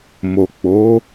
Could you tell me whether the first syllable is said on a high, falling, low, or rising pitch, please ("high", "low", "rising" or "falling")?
low